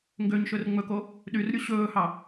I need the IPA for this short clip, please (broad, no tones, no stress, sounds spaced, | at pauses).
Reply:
ŋ ɡ ø ɲ ʃ ɵ r ŋ͡m ɵ k o | ɗ y r ɾʲ u ɕ ɵː h ɑ